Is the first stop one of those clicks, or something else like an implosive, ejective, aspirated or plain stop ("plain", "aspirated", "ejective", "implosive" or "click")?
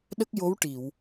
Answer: implosive